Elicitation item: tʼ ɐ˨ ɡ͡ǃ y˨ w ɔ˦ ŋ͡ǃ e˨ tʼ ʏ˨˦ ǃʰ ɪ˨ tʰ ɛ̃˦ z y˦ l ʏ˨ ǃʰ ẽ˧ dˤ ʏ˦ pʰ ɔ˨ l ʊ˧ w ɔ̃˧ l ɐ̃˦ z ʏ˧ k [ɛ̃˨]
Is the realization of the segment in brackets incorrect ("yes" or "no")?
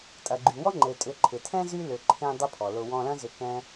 yes